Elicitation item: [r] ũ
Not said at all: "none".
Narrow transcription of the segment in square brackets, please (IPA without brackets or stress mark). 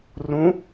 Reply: r